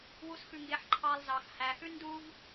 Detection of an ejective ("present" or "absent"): absent